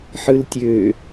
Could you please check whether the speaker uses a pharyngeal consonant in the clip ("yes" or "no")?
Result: yes